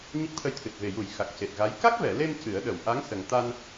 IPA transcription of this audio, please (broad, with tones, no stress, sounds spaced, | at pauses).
ɲ ə˦˥ k̚ t̪ʰ ə˧ j t̪ʰ ɨ˨˩ t̚ v e˨˩ j u˨˩˦ j x a˨˩ k̚ c e˨˩ t̚ ɣ a˧˥ j k a˦˥ k̚ v ɛ˨˩˨ l e˧ m c ɨ˨˩˦ ə̯ ɗ ə˨˩˨ w ʔ a˧˥ ŋ s ə˨˩ ŋ t̪ a˧ n